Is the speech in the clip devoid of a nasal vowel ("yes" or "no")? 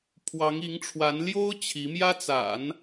yes